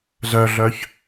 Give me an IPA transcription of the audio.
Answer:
z œ ɮ œ ç

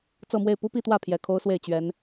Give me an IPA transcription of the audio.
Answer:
t͡s ɤ˥˧ m w e˥˩ ɪ̯ p u˥ p i˥˧ t̪ w ä˥˩ pʰ j ɛ˨˩ kʰ o˥ ʊ̯ s w e˥˩ ɪ̯ t͡ɕ ɥ ɛ˧˥ n

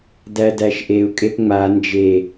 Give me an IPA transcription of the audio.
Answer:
d æ d æ ʃ ʔ e u̯ kʼ e p ŋ͡m a n d͡ʒ e

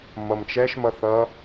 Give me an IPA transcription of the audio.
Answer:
m ʌ m t͡ʃ ɛ ʃ m ʌ θ ʌ

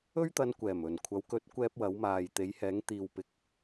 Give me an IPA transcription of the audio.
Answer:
ɵ˥ ɥ t̪ ɐ˧ n kʷ ɛː˨˩ m ɵ˨˩ n kʷʰ ɐ˨˧ w k ɵ˨˥ t̚ kʷ ɛː˧ p̚ w ɐ˨˧ w m aː˨ j t̪ e˨˧ j h ɛː˨˧ ŋ t̪ iː˨ w p ɪ˨ k̚

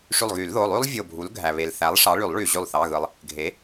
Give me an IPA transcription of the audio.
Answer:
ʂ y˧˩ lˠ ɣ y˨˩˦ l ð o˩˧˩ lˠ y˥ lˠ vʲ o˧˩ bʱ u˩˥ l ɡʱ æ˩ β e˩ l θ æ˩˥ lˠ ʂ ɑ˩˥ ɭ y˨˩˦ lˠ ɭ y˩ ʑ y˧˩ lˠ θ ɑ˩˧˩ ɣ ɯ˩ lˠ | ɡʱ e˩˥

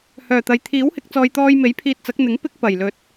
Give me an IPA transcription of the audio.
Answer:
h œː˨˩ t̪ ɐ˨ j t̪ʰ iː˨˥ w h ɪ˨˥ k̚ t͡s ɔː˨ j t̪ ɔː˧ j m e˨˥ j pʰ iː˧ t̚ t͡s ɐ˨˥ k̚ n̪ ɪ˨˥ ŋ p ɪ˥ k̚ p ɐ˨˩ j l ɵ˨ t̚

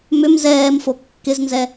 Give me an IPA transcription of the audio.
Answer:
m ʏ m z ɛː m f o kː ɪ z n z ɛ

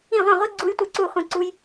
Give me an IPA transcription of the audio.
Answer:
ĩ˥˩ ʁʷ ẽ˥˩ ʁʷ i˦˥ ɡ͡ǀ u˦˥ j tʷ e˥˩ ǀ u˥˩ χʷ ĩ˥˩ ǀ u˦˥ j

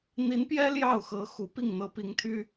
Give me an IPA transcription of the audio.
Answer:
n̪ i˧˥ n p j ɛ˥ l j ɑ˥˩ ʊ̯ x ɤ˧˥ x u˧˥ p i˥˩ ŋ n̪ ɤ˧˥ p i˧˥ ŋ t̪ʰ y˥

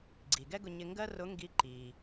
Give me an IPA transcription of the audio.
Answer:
ɡ͡ǀ i˩ ɡ ɛ˥ ɡ ʊ˧ ɲ ɪ˧ ŋ ɡ ɜ˥ r ʊ˧˥ ŋ ɡ i˧˥ ǃ i˩

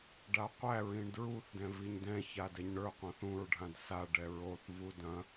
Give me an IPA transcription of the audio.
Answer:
ɖ a qʷ æ ɹ ĩ ɳ d ɹ u θ d ɛ̃ v i ɲ d ɛ̃ ç a d ɛ ɲ ɳ ə˞ qʷ ɐ̃ θ ũ ɹ ɖʱ ã d s a ɖ ɛ ɹ o θ v u d ɐ̃

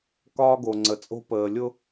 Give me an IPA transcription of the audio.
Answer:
k ɒː˦ ɡ o˨ ŋ͡ǀ ə˨ t͡sʼ o̤˦ p əː˨ lʲ ʊ˦

